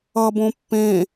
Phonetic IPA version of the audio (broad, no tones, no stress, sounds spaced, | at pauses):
ʌ b õ pː ẽ